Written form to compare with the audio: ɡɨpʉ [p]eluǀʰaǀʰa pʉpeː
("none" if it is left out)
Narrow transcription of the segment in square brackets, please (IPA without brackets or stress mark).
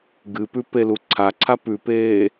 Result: p